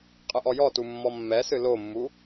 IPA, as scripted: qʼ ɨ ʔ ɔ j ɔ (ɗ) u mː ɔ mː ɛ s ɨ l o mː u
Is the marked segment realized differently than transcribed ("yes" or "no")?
yes